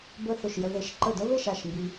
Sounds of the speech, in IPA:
bə˥˩θʊ˥˩ʃjə˧ ðe˧ʃǃə˥˩ də˥βe˥˩ʃ a˥˩ʃmbi˧

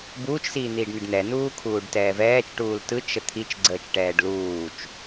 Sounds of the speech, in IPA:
buːt͡ʃsiːn̪iːɖnɯɖ nɛnuːkʰuːɖ tɛːvɛːt͡ʃʈuːl tɯt͡ʃ ət̪ʰit͡ʃɡ͡ǀəːt͡ʃʈɛːɖ luːt͡ʃ

